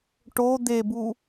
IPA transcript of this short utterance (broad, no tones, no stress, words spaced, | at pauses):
ʈo d̪ebu